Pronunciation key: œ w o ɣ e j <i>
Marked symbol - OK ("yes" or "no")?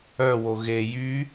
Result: no